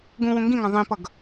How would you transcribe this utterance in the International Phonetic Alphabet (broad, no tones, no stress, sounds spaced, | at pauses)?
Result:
ɡ ũ w ũ ŋ ɡ ĩ ŋ ã ðˤ ĩ p ʌ ɡ